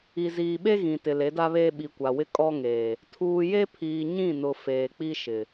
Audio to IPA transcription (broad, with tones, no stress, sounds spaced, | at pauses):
i˨ z iː˨ ɓ e˦ ɣ ĩ˨ t ɪ˨ l e˨˦ d a˦ β eː˦ ɓ i˨ kʷ a˨ w ɪ˦ kʼ ɔ˦ ŋ eː˨ | tʰ uː˨ j e˦ pʰ iː˨ ɲ ĩ˦˨ n ʊ˨ f eː˨ k͡p i˦ ʃ ɪ˨